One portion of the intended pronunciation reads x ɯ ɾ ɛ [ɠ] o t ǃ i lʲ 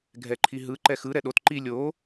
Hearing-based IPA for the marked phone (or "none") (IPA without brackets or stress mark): ɗ